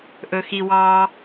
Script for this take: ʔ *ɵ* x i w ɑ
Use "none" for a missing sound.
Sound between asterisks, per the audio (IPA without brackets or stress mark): ɵ